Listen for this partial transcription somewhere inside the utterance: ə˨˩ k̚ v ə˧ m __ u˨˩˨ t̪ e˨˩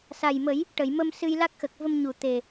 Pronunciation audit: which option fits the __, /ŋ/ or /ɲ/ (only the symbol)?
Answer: ɲ